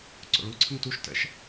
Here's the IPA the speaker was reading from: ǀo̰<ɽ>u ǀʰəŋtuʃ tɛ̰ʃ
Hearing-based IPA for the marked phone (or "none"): ɭ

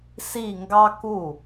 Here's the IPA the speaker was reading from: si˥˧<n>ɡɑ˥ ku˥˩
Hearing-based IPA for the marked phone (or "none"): ŋ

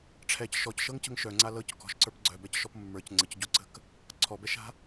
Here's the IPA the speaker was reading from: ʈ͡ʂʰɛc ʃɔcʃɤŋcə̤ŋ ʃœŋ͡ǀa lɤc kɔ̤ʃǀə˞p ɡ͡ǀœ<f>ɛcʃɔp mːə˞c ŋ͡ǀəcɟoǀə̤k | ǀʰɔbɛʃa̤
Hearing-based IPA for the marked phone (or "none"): b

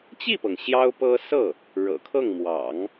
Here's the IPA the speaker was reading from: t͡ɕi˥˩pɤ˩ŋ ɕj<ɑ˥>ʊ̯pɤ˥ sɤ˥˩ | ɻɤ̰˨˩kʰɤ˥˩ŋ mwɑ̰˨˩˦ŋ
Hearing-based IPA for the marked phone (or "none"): ɑ˥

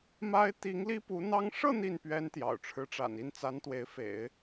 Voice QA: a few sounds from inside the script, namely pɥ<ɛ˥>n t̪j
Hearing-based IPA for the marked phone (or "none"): ɛ˥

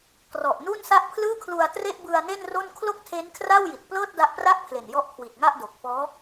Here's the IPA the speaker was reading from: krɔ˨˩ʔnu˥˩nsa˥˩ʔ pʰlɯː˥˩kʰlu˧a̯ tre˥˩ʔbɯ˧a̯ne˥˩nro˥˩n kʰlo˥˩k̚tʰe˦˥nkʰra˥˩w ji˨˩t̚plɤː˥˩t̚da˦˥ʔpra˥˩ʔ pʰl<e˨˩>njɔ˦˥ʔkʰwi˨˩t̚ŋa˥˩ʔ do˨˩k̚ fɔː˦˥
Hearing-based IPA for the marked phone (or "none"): e˨˩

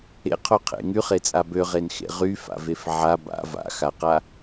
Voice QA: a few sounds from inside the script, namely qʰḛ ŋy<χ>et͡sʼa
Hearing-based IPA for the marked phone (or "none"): χ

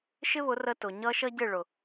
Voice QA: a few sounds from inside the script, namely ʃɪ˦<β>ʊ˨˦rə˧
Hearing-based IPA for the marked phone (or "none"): β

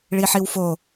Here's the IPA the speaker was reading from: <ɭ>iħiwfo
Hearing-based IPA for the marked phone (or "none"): ɭ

